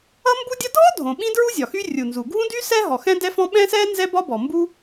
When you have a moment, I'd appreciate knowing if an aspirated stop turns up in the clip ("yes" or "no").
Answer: no